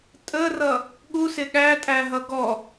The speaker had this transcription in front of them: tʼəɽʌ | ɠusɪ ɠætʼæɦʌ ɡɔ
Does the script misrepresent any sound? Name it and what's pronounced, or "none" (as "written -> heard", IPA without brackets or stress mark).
ɽ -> r